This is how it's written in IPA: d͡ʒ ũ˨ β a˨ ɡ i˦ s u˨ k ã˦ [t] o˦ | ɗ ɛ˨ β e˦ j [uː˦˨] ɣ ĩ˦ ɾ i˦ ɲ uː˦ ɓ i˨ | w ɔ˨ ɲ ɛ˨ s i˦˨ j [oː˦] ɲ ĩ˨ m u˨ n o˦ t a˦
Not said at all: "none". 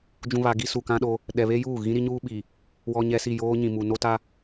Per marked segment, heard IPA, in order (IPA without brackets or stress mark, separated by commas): ɗ, uː˦˨, oː˦